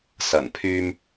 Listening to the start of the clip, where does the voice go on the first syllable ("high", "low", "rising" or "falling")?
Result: low